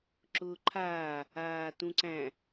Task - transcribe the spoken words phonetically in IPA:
ǁ ʊː ǃʰ aː | aː t ũ ǀ æ̃

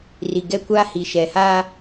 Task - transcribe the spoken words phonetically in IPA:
r i˨ ɡ ɛ˦ kʷ aː˦ h i˨ ʃ ɛ˨ h aː˦

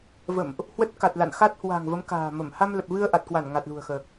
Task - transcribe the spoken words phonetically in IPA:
v ə̰˧˨ m ʔ | h w ə˦˥ t̚ k a˨˩ t̚ l a̰˧˨ n x a˦˥ t̚ h w a̤˨˩ ŋ v ə˨˦ m k a̤ː˨˩ m ə˧˩ m h a˧ m l ə˨˩ p̚ v ɨ˧ ə̯ ʔ a˨˩ t̚ k w a˧˩ n ŋ a˨˩ t̚ l ṳ˨˩ ə̯ x əː˨˩ k̚

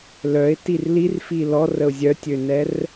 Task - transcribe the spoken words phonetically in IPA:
l œ ɪ̯ t i r l i r f i l ɔ r ə ʊ̯ zʲ œ tʲ ø n ɛ r

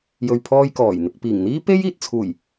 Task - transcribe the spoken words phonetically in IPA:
j ɵ˨ ɥ pʰ ɔː˧ j k ɔː˨˩ j n̪ ɪ˨ k̚ p iː˨˩ ŋ n̪ iː˥ p e˥ j iː˨ t̚ t͡sʰ uː˨˩ j

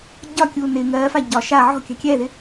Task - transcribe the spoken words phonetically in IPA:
ɟ ɒ kʲ uː n ɪ ŋ ɜː f a ɟ ɒ ʃ a ʕ ɔ̤ kʲ a̤ kʲ ɛː ð ɪ

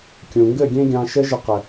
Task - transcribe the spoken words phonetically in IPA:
kʲ ũ˨ ŋ ɡ ɘ˦˨ ɡʲ ẽ˦ ɡʲ ɑ̃˧ ʃ ɘ˦ ʒ ə˧ q ɘ˨

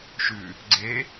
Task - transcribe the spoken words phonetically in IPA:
ʃ ʉ | ɡ͡ǀ e

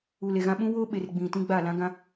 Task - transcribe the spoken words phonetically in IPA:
u˨ l e˨ ɣ ã˦ ɓ ũ˦ w o˦ ɓ e˨ r ɡ͡b ĩ˨ t ĩ˦ ɡ͡b a˦˨ l ã˦ ɡ ã˦

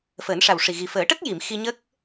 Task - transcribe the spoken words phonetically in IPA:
f əː˨˩˦ n ʂ a˨˩ w ʂ i˨˩ ɣ i˨˩ f əː˨˩˦ ʈ ə˦˥ k̚ j i˨˩˨ m x i˧ ɲ ə˦˥ k̚

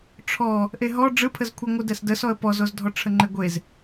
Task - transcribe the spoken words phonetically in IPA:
ʈ͡ʂʰ ɔ | ʔ e ɦ ɔ ɖ͡ʐ ɯ pʰ ə z kʷʰ ɛ ŋʷ ɯ d ɛ s d ə s ɔ ə̯ p ɔ z o z dʱ ɔ ʈ͡ʂʰ ə ŋ͡ǃ e ɡʷ e z

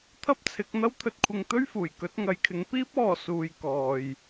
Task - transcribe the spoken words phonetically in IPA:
t̪ʰ ɐ˥ p̚ t͡sʰ ɪ˨˥ k̚ n̪ ɐ˥ w t̪ʰ ɵ˧ t̚ kʷʰ ɪ˧ ŋ t̪ ɵ˥ ɥ f uː˨˩ j k ɵ˨˥ t̚ ŋ ɐ˨ j kʰ ɪ˨˧ ŋ p iː˥ p̚ ɔː˨ s uː˨ j k ɔː˨ j

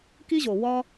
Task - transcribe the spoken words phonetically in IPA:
k i˦ ʑ o˨ w ɒ˦

